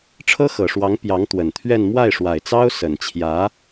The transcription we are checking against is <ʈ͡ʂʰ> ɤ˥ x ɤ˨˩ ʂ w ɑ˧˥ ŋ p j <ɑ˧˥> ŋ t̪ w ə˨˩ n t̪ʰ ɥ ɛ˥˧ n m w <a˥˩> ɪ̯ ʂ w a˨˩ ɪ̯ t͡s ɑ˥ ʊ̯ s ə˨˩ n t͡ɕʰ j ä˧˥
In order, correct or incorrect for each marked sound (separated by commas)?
correct, correct, correct